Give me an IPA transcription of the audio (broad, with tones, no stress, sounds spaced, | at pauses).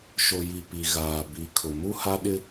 ʃ o˨ j i˨ p i˨ ɣ aː˨ b i˨˦ kʰ ʊ˨ m u˦ h a˦ ɗ ɪ˦